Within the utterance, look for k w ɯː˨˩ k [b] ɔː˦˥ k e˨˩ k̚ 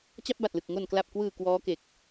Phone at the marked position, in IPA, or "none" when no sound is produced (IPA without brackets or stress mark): w